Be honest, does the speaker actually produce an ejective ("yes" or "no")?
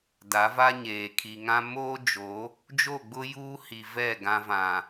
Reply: no